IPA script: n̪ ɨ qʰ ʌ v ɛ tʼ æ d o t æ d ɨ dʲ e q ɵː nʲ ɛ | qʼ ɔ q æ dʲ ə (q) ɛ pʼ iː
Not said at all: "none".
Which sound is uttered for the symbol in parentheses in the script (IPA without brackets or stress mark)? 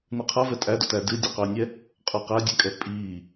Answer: kʼ